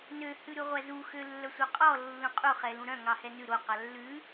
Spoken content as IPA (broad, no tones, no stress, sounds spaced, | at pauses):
n ø h ʉ ɾ ʉ ʁʷ æ z u x ø lː œ sʷ œ qʼ ɔ lː ũ qʼ u χ ɛ l ũ ɾ œ̃ ŋ ɑ h ɛ n ʉ ɾ o q ɑ lː ʉ